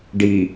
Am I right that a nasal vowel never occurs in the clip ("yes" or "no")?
yes